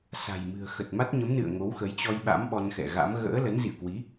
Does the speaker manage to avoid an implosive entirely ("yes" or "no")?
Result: no